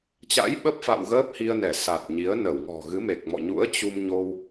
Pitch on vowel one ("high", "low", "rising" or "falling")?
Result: rising